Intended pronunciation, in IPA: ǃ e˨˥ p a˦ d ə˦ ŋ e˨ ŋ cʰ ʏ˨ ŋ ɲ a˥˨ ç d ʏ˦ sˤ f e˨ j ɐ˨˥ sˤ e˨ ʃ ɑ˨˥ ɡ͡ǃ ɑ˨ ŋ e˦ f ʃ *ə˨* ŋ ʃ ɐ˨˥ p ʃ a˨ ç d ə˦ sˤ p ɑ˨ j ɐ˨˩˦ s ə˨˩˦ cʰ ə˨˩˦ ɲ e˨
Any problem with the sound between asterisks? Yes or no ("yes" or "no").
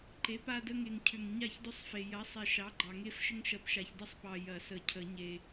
yes